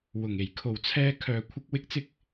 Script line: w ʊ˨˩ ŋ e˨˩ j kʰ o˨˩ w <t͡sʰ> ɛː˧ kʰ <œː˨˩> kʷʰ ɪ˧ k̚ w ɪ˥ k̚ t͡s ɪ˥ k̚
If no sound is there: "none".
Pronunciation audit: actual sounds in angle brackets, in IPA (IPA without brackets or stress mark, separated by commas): t͡sʰ, œː˨